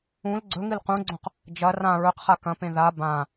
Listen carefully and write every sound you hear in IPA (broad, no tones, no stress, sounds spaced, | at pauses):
ũ l ɡ͡ǀ ɵ ŋ ɨ l q ũ ɡ͡ǀ õ q | d͡ʒ ɐ r ã ɹ ɵ q χ a k ɐ̃ p ẽ ð a b ã